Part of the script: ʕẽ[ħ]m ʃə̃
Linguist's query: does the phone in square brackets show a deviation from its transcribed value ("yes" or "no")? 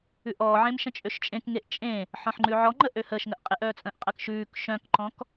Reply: yes